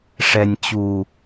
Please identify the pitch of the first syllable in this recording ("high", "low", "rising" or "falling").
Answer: low